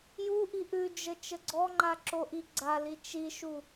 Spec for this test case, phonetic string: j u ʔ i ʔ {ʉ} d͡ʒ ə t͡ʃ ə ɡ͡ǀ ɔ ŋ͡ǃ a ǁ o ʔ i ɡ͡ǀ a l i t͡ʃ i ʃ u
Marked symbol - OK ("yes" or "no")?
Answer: yes